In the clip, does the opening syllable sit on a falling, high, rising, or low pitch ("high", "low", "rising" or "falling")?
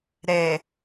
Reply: low